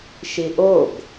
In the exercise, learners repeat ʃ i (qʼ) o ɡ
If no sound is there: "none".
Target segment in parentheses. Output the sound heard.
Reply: ʔ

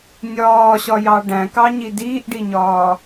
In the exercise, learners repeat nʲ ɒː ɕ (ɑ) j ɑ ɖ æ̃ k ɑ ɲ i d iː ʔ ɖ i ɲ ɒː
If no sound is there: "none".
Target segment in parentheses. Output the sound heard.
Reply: ɒ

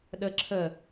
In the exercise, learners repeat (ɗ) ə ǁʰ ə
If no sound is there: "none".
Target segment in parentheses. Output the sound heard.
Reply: ɗ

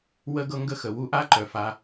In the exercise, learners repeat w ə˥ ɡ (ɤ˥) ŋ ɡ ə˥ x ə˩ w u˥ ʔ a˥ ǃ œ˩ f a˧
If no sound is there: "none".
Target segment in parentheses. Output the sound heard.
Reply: ɤ˥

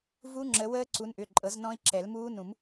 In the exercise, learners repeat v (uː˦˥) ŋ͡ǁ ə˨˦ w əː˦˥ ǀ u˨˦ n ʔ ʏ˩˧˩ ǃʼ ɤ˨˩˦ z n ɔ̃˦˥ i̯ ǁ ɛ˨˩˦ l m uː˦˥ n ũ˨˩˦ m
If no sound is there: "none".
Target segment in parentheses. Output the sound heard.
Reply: u˦˥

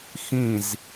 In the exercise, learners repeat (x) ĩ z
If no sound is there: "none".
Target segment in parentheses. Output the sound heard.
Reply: x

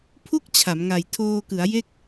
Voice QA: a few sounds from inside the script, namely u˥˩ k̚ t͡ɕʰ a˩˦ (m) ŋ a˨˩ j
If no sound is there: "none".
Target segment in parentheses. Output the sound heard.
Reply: m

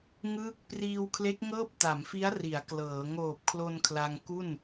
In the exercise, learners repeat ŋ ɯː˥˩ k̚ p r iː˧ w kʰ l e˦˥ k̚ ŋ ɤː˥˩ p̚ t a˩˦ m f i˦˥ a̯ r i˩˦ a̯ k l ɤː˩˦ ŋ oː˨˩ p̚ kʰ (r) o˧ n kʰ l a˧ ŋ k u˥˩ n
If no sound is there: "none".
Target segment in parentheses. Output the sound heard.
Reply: l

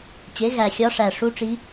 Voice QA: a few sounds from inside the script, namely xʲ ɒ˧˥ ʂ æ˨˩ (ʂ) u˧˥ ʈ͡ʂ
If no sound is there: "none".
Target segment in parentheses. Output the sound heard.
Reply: ʂ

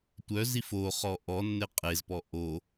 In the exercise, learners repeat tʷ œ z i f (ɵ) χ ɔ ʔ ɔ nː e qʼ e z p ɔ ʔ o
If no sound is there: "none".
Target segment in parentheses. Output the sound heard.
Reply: o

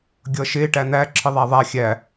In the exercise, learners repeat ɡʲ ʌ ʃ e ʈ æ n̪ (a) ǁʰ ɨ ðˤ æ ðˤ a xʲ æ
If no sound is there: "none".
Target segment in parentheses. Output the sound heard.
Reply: æ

